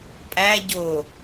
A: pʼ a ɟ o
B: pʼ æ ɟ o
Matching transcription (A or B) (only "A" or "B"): B